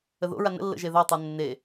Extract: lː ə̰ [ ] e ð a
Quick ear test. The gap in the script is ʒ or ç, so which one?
ʒ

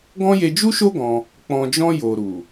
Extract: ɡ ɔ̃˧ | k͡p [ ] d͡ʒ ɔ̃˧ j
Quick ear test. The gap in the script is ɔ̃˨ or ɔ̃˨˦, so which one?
ɔ̃˨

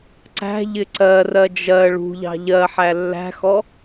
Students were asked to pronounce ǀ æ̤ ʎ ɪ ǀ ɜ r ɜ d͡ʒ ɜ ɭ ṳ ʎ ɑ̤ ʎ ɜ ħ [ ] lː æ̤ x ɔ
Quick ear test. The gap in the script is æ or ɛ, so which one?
æ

